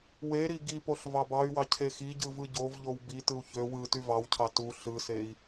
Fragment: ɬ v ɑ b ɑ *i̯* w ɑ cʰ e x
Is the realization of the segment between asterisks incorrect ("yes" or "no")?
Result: yes